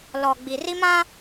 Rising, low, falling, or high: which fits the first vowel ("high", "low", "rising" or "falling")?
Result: low